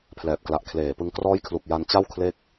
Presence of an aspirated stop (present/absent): present